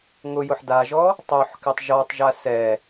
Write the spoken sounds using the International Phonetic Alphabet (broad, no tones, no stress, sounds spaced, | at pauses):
ŋ ʊ j ʊ ħ d a ʒ ɔ | tˤ o ħ k ɪ tˤ ʒ ɔ tˤ ʒ a s ɛ